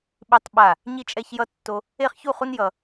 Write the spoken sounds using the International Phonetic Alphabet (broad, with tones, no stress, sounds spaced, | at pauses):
ɓ i˥ tˤ ɓ a˥˧ | ɲ i˥ t͡ʃʼ ɛ˥ ç j ʌ˥ tː o˥ | e˥˧ χ ç u˥˧ χ u˥ n j ʌ˥